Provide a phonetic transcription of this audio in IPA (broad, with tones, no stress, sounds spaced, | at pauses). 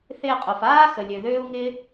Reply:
θ ɪː˧ qʼ o˨ f aː˦ x ə˨ lʲ ø˨ ð øː˦ u̯ ŋ ɪː˦